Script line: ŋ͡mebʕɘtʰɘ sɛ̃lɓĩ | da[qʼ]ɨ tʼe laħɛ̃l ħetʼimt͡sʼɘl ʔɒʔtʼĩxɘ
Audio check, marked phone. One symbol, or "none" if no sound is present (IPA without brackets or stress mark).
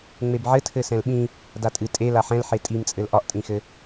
tʼ